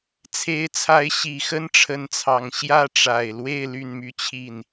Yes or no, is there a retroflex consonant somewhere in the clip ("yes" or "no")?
yes